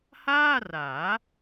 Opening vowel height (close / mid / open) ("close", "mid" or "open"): open